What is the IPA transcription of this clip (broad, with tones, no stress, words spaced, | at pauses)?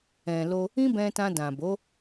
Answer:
ɛ̃˨lo˧ | ĩ˦bɛ̃˧tã˧ dã˨bo˨˦